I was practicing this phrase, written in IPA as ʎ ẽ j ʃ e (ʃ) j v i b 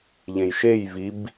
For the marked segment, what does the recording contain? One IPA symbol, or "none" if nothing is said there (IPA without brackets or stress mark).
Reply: none